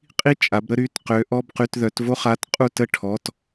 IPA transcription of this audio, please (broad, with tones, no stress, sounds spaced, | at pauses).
qʼ i˥ t͡ʃʼ a˨˦ b ɾ ə˥ ɾ y˩˧˩ t q ø˨˦ ʔ ɔ˧˥˧ b q y˧˥˧ t ð œ˨˦ t v o˥ χ a˧˥˧ t qʼ u˥˧ t ə˥˧ ʈʰ ɔ˩˧˩ t